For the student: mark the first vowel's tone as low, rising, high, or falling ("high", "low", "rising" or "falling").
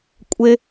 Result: high